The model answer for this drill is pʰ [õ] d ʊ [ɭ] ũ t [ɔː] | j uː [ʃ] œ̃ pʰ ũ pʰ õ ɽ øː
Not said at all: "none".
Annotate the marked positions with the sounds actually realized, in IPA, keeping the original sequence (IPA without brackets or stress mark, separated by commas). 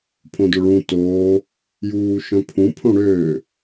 õ, ɭ, oː, ʃ